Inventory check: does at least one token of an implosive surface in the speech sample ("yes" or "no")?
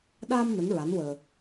yes